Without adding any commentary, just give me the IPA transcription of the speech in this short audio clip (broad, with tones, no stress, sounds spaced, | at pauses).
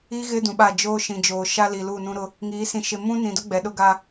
i˦ ɣ ɪ˦ d ũ˨ ɓ a˦˨ d͡ʒ oː˦ ʃ ĩ˨ d͡ʒ oː˨ ʃ a˦ l i˨ l u˦˨ n ũ˦ ɾ ʊ˦ | ŋ iː˨˦ s ĩ˨ ʃ ɪ˨ m ũ˦ n ĩ˨ d ʊ˦ ɡ͡b ɛ˨ ɗ ʊ˦ ɡ a˦